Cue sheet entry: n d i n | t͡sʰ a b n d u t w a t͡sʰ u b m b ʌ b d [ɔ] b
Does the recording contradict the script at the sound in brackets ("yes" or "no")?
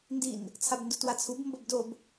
yes